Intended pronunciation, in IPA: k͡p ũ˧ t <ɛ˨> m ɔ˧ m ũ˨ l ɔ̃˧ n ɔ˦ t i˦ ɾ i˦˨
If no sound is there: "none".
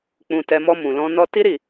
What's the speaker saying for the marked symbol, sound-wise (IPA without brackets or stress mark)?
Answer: ɛ˧